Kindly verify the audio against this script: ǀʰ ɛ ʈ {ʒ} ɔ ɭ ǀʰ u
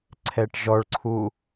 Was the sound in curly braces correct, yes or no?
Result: yes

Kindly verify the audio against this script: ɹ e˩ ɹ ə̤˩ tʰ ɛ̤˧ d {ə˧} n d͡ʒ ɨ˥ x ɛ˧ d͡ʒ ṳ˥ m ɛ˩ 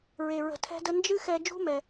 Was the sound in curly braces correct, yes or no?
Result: yes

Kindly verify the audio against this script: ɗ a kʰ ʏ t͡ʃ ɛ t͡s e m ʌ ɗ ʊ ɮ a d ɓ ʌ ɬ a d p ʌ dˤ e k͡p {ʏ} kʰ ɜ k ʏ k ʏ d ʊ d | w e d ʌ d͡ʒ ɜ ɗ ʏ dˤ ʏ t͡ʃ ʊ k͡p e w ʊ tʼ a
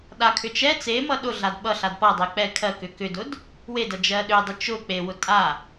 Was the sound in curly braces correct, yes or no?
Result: no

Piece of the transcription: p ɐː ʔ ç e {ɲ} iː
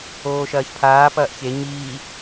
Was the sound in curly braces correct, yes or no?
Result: yes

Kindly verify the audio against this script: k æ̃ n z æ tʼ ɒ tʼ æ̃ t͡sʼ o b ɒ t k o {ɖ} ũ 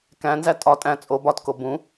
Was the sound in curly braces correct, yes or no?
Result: no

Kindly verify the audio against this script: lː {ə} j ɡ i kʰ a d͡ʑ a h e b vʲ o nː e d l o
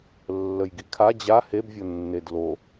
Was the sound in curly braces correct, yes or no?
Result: yes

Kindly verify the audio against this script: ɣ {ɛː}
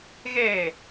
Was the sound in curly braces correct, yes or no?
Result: yes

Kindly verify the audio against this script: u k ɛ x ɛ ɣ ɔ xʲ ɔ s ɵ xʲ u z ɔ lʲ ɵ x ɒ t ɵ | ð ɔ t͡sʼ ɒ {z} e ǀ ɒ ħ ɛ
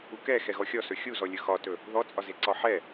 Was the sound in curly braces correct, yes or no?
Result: yes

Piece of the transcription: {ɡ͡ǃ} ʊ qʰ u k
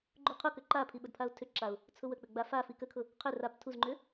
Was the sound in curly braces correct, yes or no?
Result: yes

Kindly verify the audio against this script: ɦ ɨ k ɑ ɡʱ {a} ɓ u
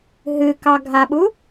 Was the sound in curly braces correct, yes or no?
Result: yes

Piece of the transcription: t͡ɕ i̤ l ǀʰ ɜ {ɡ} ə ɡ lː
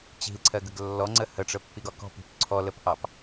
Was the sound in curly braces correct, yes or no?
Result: yes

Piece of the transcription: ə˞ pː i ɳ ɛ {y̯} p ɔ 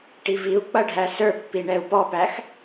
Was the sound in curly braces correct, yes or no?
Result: no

